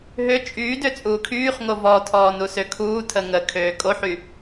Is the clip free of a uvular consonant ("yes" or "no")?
no